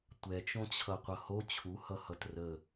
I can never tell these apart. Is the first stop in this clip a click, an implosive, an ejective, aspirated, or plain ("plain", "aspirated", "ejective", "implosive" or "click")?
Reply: plain